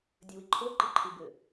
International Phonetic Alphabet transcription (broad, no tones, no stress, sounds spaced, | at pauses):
dʲ ɘ w i ǃʰ o ǃ i ǃʰ ɨ b ɘ